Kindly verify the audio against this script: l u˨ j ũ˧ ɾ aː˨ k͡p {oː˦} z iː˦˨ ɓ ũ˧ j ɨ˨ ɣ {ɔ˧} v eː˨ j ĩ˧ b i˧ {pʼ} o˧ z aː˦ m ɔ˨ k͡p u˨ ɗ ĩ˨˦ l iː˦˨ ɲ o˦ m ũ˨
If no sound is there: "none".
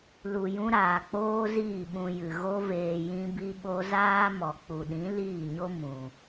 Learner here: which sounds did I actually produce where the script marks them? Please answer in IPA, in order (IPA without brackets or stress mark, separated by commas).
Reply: oː˦, o˧, ɓ